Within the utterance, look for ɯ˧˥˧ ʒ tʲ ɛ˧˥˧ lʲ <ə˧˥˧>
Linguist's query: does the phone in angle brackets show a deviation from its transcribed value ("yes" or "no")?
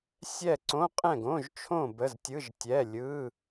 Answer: yes